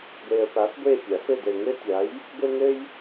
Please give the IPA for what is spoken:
ɡʷ e˨ ə̯ p a˨˥ f ɡʷ e˦˨ pʲ a˨˩˦ f ɘ˦˨ d ɘ˨ ŋ ɘ˦ tʲ a˨˥ j | ɡʷ ɘ˦ ŋ ɘ˦ j

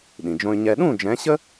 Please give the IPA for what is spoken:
ɗ ĩ˩ d͡ʒ õ˧ y̯ ɲ ɛ˧ ɗ ũ˥˩ d͡ʒ ɛ̃˩˥ ɕ ə˥

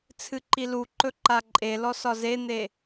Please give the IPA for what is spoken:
t͡sʰ ɨ ǃ i l u ǃ ɵ ǃ a ǃʼ e l ɔ s ɒ z e n̪ e

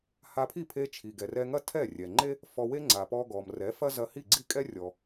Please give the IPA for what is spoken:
h a˧ pʰ i˥˩ pʰ e˧ t͡ʃʰ i˩ ɡ ɛ˩ r ɛ˧ ŋ ɐ˥ tʰ ɛ˥˩ rʲ ɛ˩ ŋ͡ǃ e˥ | f ɔ˧ w e˥ ŋ͡ǀ a˩ p ɔ˧ ɡ ɔ˩ m r ɛ˩˥ f ɐ˥ z ɐ˧ h i˥˩ ɡ͡ǀ i˥˩ kʼ ɛ˥ rʲ ɔ˩

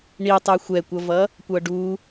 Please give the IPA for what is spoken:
ɳ i tˤ ɛ xʷ ɛ kʷ ʌ v ʌ | kʷ ʌ ɖ u

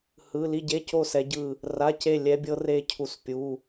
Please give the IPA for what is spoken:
h ɯ˧˥˧ l i˥˧ ɟ e˧˥˧ c o˥˧ s ɛ˦˥ ɟ ɯ˥˧ | r a˧˥˧ c e˥˧ lʲ ɛ˦˥ bʲ ɤ˦˥ r e˦˥ cʰ u˦˥ s pʲ u˧˥˧

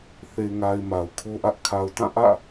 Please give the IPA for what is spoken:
θ e˨ ŋ a˨ ɪ̯ m a˨ ʊ̯ kʰ o˦ ʔ ä˦ ʔ kʰ a˨ ʊ̯ t ã˦˨ ʔ ä̰˦˨

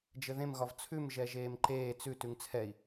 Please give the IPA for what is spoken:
d͡ʒ ɘ ð ẽ m ɣ ɒ v t͡sʰ ʉ m ʒ ɛ ʒ eː m ǃ eː t͡s ʉ t ʉ ŋ t͡sʰ ɛ i̯

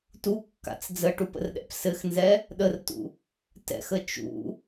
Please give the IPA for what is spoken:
t u kː a̰ t͡s d͡z ə ʈ u p ə̰ r ɗ ɛ̰ p s ɘ x n z ɛ | ɗ ə r t ṵ | t ɛ̰ x ə t͡ʃ ṵ

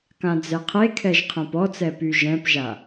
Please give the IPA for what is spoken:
k ã d͡z ɛ qʰ e kʰ ɛ ʒ qʰ ɛ̃ p ɔ t͡s ɛ p y ʒ ɛ̃ p ʒ a

